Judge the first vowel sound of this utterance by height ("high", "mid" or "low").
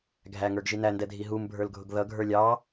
low